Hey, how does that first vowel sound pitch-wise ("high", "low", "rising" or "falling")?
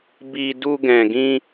high